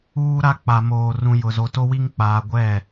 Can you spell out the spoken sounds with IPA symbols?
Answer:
uː˦ ɾ a˦ k͡p a˨ m oː˨ r ũ˨ j ʊ˨ z o˨ t o˦ w i˦ ŋ k͡p aː˨ ɡʷ ɛ˦˨

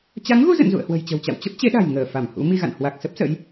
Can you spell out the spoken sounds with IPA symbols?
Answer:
t͡ɕ a˨˦ ŋ ɣ u˧ z ə̰˧˨ n z ṵ˧˨ ə̯ h w ə̤˨˩ j t͡ɕ ə̤˨˩ w t͡ɕ a̰˧˨ w t͡ɕ ə˦˥ p̚ t͡ɕ e˨˦ ɗ a̤˨˩ j ŋ əː˧˩ f a˧˩ m h ṵ˧˥ m i˧ ɣ a̰˧˨ n h w a˨˩ k̚ s ə˦˥ p̚ s ə̰˧˥ j

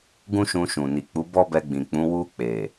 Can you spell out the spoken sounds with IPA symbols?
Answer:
ɡ ũ˦ ʃ ũ˧ ʃ ũ˨ n i˨ k͡p u˨˦ b ɔ˦ b ɛ˧ ɡ͡b ĩ˨ k͡p ũ˨˦ w u˧ k͡p e˨

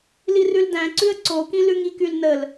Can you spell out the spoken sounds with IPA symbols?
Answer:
l i r ʉ l d æ̃ ǀ ʉ ə̯ ǀ o k ĩ l ʉ ŋ i k y l n ə l

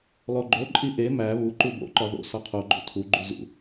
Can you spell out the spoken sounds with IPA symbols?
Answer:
lˠ o ɡ͡ǃ o ǃʼ i ʔ e m æ β u ǃ u b o̰ ǃ ɒ ð o̰ s ɒ qʰ o ɡ͡ǃ o̰ tʰ u ɡ͡ǃ u z ṵ

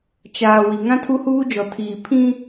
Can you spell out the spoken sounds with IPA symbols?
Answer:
t͡ʃ aː˨ w i˨ ŋ ã˦ tʰ u˦ h uː˦ d͡ʒ ɔ˨ tʰ iː˨ pʰ ĩ˦

